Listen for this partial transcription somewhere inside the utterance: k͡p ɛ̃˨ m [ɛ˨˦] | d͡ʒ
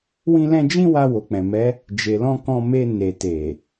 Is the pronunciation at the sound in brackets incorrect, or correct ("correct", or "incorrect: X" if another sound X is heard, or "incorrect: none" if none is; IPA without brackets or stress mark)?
correct